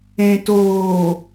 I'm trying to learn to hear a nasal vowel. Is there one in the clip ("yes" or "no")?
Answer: yes